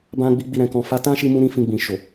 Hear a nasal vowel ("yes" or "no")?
yes